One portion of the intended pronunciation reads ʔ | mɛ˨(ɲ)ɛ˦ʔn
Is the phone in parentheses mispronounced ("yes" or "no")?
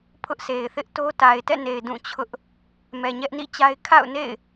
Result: no